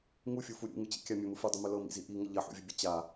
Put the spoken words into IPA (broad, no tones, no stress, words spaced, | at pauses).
ŋufʲufu ɾʲṵŋɯt͡ɕḭkʲa mʲɵmɯ fudˤəmɵ lɤmḭzi ʔiŋə ʎɐħṵvʲəbʲə t͡ɕa